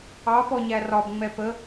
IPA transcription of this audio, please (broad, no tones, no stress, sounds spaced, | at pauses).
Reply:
ɑ p ɔ ɲ æ r ɒ b ŋ͡m ɛ p ə